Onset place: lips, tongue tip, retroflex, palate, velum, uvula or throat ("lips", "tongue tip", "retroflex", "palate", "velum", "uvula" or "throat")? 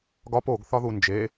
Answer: velum